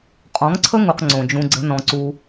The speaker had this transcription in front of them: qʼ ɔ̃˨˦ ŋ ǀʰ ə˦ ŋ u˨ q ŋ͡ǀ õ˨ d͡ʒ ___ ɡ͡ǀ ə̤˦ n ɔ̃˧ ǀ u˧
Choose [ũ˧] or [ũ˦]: ũ˧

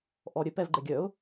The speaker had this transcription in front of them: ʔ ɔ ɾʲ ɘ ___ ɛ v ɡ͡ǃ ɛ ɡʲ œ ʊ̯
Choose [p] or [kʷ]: p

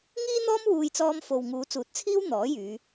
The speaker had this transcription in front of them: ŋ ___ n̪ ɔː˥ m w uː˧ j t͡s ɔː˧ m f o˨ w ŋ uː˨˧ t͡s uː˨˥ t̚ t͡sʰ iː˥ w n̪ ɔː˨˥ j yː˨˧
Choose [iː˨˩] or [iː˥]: iː˥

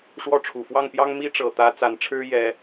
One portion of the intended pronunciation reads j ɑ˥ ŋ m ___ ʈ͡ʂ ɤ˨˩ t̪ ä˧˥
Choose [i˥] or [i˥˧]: i˥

